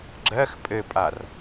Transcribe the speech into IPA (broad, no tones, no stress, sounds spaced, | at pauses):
ɡ͡ǁ ɜ x pʼ ɘ pʼ a r